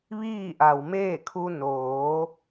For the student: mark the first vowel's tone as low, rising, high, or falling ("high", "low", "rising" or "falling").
falling